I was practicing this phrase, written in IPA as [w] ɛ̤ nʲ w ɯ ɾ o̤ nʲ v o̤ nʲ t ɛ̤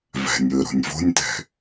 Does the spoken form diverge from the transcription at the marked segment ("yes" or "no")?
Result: yes